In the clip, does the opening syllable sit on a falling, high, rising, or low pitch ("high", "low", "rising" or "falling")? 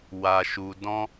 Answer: low